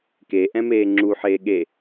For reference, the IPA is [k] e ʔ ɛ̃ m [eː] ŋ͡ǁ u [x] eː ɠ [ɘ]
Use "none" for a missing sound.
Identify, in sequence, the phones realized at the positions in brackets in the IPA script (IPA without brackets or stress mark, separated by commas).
k, eː, ħ, e